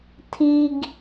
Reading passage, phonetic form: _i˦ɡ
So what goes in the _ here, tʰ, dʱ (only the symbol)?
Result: tʰ